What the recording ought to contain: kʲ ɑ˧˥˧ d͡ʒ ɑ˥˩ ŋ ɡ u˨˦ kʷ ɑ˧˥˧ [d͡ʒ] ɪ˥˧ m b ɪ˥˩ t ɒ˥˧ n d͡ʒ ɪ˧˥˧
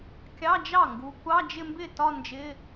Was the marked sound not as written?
no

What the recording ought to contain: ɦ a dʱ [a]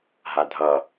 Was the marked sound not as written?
yes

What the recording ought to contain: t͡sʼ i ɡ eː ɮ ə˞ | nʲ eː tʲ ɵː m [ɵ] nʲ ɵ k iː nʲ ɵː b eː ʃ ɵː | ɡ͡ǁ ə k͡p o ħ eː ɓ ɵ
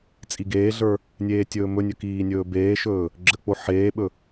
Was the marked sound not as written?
no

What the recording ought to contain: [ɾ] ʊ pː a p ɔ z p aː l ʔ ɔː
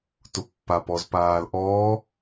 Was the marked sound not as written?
yes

